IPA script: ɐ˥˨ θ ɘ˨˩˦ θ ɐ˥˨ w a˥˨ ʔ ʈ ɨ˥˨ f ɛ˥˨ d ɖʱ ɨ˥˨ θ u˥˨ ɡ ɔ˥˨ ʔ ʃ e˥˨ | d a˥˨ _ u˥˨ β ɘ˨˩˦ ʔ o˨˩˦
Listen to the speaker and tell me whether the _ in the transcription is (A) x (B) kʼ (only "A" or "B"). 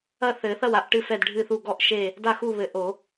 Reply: A